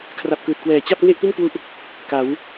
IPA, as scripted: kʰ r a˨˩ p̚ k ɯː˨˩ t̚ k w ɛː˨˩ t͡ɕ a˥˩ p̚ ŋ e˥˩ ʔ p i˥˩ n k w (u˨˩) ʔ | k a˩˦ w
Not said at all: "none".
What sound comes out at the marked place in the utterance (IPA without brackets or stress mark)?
u˦˥